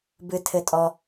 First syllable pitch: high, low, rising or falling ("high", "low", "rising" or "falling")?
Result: high